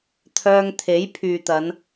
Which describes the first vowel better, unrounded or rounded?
rounded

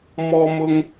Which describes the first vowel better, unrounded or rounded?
rounded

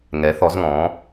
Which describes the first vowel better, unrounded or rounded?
unrounded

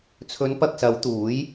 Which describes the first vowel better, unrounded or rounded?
rounded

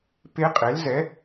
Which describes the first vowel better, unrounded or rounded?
unrounded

